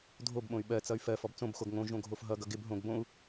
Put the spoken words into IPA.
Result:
dʱ o b ɓ õ y̯ ɓ ɜ t͡s ʌ y̯ f ɜ f ɔ b t͡s õ b x o ɡ ŋ õ ʒ õ ɡʱ o f ɦ ʌ ɡ ʌ ɡ ɪ b ɦ õ ɡ b õ u̯

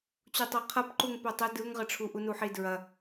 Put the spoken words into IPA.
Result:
t͡ɕ u tˤ o qʰ ɐ p ǃ u ŋ p œ tˤ ə d ɯ ŋ ʁ ə ʈ͡ʂʰ u ʔ u n u ħ i d ɹ ɐ

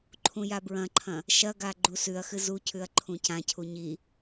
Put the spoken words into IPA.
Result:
ǃʰ ũ j a b ɹ ɐ̃ ǃʰ ɐ̃ | ʃ ɐ ɡ a ɡ͡ǃ u s ʉ ɐ̯ x ɨ z u cʰ ʉ ɐ̯ ǃʰ ũ c ã cʰ u ɲ i

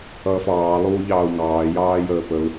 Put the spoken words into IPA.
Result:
ʌː f ɑː lˠ uː ʎ ɑː u̯ ŋ ɑː j ɑː j əː p ə u̯

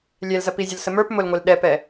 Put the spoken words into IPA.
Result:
lʲ ɛ l z ɐ p i zʲ ʊ l s ə m ə˞ p m ʊ l ŋʷ ɛ l ɗ ɛ p ɛ

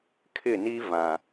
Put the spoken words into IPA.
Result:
kʰ ɪ˦˨ n i˦ v ã˨

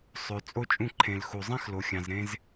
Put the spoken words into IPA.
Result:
sˤ ø˨ t͡sʼ o˦ t͡ʃʼ ũ˦˨ ǃʰ ẽ˨ l x u˨ zˤ ĩ˦ x l o˨ xʲ ɑ̃˨ z ɾ ẽ˦ z

